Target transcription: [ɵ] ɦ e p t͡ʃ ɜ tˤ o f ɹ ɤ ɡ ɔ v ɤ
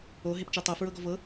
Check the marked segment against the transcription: incorrect: o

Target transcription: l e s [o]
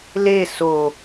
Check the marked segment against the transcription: correct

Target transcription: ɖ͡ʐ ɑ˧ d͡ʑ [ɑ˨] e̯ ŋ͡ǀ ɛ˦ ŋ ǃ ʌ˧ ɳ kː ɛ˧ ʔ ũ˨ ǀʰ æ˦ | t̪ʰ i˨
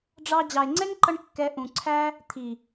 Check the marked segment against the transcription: correct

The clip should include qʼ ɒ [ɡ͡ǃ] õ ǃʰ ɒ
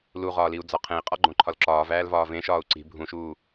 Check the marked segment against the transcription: correct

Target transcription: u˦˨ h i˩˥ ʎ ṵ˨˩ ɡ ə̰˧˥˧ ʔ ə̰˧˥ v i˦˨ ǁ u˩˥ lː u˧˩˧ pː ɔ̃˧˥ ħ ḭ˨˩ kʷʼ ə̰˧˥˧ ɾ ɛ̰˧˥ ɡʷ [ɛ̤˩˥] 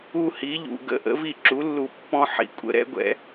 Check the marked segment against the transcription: incorrect: ɛ̰˩˥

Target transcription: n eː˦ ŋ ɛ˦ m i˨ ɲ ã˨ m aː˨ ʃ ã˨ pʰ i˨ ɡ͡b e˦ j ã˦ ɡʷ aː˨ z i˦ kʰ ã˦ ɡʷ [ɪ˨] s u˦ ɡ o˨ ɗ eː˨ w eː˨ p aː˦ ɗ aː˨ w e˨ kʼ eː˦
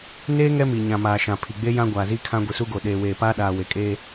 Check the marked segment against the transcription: incorrect: i˨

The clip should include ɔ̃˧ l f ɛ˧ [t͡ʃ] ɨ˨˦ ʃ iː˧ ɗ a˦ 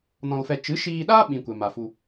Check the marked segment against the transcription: correct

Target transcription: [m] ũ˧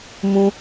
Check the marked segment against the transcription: correct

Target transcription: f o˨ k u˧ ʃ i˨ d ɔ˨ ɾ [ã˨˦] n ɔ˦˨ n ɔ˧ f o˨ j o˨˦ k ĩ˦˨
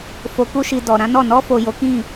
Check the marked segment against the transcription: correct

